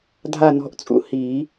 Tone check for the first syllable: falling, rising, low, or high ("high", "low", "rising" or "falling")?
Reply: falling